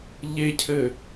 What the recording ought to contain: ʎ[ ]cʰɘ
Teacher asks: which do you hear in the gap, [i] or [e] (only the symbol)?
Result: e